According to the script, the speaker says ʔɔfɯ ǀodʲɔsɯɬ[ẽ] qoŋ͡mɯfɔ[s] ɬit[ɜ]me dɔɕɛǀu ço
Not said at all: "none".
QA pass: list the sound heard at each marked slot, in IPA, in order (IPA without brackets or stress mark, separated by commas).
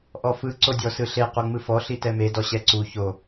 e, none, ɛ